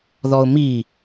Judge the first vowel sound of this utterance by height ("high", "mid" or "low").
mid